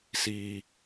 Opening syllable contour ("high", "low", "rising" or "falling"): high